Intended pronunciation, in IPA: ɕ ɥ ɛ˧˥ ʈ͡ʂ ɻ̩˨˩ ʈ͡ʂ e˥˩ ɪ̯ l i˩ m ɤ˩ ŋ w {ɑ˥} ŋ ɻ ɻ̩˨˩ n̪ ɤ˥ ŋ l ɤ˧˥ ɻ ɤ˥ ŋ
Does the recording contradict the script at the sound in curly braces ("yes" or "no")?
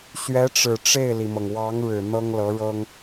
yes